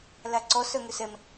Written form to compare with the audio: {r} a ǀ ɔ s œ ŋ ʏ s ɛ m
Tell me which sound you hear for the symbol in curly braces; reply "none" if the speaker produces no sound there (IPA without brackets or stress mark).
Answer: l